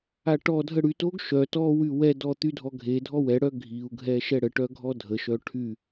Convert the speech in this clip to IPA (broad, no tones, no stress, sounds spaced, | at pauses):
a ʈ ɔ dʱ ə ɽ y t o ɡ ʃ œ t ɔ w y w ɛ d ɔ t̪ y dʱ ɔ ɡʱ e dʱ ɔ w ɛ ɽ œ ɡʱ i u̯ ɡʱ ɛ ʃ ɛ ɽ ə ʈ œ ɡʱ ɔ dʱ ə ʃ œ ʈʰ y